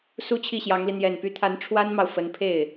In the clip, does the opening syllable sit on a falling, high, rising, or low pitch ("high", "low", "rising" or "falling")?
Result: high